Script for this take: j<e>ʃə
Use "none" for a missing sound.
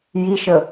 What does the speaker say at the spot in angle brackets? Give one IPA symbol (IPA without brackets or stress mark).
i